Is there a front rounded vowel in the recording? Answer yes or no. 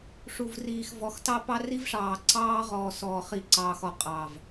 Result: no